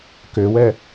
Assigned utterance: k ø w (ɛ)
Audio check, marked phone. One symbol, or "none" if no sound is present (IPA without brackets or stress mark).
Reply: ɛ